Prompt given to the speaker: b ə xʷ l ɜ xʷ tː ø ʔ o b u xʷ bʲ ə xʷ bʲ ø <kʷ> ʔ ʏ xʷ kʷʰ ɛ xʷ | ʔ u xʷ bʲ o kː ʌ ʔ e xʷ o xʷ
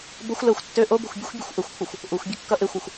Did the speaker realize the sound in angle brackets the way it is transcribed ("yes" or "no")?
no